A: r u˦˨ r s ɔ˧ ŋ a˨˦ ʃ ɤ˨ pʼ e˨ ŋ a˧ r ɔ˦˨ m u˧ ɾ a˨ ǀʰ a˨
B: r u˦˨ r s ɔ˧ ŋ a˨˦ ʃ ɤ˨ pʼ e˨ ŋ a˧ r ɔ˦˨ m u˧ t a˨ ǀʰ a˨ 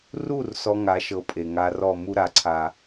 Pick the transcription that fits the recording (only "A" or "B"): A